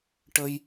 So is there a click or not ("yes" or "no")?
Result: no